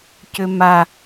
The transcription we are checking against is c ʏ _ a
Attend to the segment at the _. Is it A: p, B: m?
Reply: B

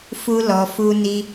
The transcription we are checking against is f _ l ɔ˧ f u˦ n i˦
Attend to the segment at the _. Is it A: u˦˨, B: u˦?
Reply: B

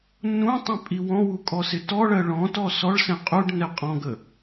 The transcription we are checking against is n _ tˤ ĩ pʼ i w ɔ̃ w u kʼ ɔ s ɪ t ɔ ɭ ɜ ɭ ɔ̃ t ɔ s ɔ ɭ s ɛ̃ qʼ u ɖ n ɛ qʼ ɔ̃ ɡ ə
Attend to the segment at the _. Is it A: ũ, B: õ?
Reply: A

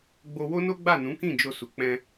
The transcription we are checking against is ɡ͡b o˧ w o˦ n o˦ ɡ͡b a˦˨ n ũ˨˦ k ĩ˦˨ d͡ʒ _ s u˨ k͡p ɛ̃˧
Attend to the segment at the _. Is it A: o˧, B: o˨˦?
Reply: A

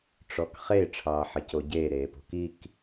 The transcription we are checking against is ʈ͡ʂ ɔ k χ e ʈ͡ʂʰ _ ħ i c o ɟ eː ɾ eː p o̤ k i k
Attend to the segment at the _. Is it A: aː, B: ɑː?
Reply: B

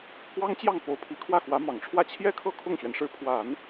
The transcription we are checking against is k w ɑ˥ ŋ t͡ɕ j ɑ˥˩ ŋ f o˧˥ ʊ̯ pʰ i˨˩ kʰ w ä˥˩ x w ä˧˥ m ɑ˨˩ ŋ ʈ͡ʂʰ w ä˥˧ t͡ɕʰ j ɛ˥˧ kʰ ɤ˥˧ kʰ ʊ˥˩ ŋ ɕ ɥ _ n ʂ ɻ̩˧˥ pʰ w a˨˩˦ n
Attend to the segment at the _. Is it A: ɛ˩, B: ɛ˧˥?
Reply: A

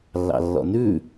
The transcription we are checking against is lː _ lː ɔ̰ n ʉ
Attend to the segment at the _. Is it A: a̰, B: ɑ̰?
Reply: B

